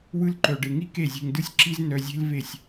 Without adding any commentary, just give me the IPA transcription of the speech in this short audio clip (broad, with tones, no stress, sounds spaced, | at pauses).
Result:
w ɯ˦ l ǃ œ˨ ɖ e˨ ŋ i˦ k e˦˨ zʲ e̤˧ ŋ d ɯ˦ sʲ ǁ i˦ z n œ˧ zʲ e̤˦ l v e˦˨ sʲ